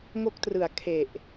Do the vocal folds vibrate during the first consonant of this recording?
yes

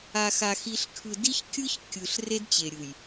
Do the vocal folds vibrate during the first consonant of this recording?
no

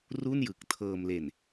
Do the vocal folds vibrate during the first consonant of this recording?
yes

